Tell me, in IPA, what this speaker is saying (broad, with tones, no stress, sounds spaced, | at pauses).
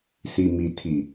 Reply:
s i˨ m i˨ tʰ i˨